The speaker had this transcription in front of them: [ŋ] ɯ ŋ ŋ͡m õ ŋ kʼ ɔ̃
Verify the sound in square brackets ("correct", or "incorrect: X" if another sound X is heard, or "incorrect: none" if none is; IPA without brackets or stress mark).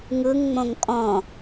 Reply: correct